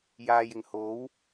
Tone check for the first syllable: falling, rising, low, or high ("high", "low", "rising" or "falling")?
low